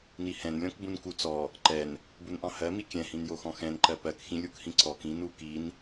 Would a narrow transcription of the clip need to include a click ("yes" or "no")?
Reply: yes